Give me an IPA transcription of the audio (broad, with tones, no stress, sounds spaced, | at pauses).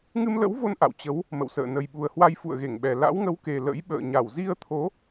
ŋ ɨ˧ m l ə̰˧˥ w v o˧ n ʔ a̰˧˨ w t͡ɕ ə˨˦ w | m ə̰˧˨ w s ə̰ː˧˨ n ə˨˩ j ɓ u˨˩ ə̯ h w a˧ j f ṵ˧˨ ə̯ ɣ e˧˩ ŋ ɓ ɛ˨˩ l a̰˧˥ w ŋ ə˨˦ w k e˨˩ l ə̰˧˥ j ɓ ə̰ː˧˨ ɲ a˧˩ w z i˧ ə̯ t̪ʰ o˨˦